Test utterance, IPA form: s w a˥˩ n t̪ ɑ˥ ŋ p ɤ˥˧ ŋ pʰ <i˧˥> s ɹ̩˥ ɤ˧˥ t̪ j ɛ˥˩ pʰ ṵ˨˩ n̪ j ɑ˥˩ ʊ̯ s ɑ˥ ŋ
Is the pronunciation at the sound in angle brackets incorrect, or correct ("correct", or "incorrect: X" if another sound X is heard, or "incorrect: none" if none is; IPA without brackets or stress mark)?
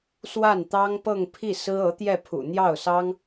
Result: incorrect: i˥˩